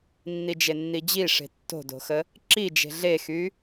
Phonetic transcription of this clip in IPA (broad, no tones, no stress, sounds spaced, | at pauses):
nː i d͡ʒ e nː i d͡ʑ i ʂ e̤ tː o̤ d o̤ x ə | ǁ i d͡ʒ e̤ ɮ e x y